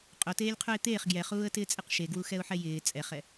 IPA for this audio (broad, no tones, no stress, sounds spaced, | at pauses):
qʼ o t eː lʲ qʰ u ɪ̯ t̪ eː χ ɡ j ɛ χ uː ə̯ t ɪː t͡sʼ ɪ q ʃ e ɡ w u x ɛ ʊ̯ ħ ɛ j ɪː t͡sʼ ɛ χ ɛ